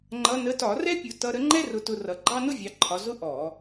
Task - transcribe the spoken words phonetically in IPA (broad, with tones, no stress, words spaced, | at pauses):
ŋ͡ǃʌ˨˦ nə˨˦tɒ˧˩˧ rɛ˥pʲʊ˧˩˧ tʌ˨˦ɾə˨˦ ŋ͡ǃɛ˥rʊ˨˦tʊ˨˦ rʌ˨˦ɡ͡ǃɑ˥nʊ˥vʲɑ˨˦ ǃʰɒ˨˦ zʊ˥ ʔɔ˧˩˧